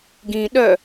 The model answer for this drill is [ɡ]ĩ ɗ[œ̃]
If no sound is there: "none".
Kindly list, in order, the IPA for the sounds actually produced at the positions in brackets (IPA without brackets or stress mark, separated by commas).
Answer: ɡ, œ